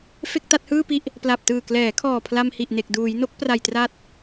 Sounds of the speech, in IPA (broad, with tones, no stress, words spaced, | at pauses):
fe˥˩k̚ta˥˩t̚hɯː˥˩pi˥˩ʔ | pla˨˩p̚tɯː˨˩klɛː˩˦kʰɔː˨˩ pʰla˧mhi˨˩ʔne˨˩k̚ duː˩˦j no˦˥k̚pra˨˩j tra˦˥t̚